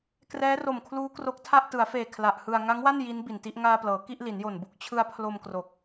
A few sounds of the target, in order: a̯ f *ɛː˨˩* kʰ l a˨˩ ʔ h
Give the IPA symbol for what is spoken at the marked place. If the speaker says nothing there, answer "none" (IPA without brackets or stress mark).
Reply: eː˨˩